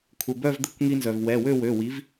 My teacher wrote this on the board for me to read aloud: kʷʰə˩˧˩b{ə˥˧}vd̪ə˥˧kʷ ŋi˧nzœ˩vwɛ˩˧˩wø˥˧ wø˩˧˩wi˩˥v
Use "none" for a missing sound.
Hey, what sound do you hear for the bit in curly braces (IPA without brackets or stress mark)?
œ˥˧